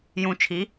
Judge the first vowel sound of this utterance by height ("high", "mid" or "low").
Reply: high